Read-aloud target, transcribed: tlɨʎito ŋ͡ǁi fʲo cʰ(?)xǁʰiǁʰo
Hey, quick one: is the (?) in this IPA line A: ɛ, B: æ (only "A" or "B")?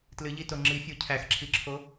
B